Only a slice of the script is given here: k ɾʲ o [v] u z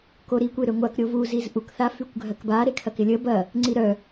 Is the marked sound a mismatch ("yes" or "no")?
no